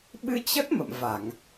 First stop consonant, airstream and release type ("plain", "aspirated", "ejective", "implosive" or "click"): implosive